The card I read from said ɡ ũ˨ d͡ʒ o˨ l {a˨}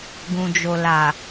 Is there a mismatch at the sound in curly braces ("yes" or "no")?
no